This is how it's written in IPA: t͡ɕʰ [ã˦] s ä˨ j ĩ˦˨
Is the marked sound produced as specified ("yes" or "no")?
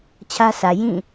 no